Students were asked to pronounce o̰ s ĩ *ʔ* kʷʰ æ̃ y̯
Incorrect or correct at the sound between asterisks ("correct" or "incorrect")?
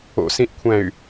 correct